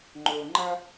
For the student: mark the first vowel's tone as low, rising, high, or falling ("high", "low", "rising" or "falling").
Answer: low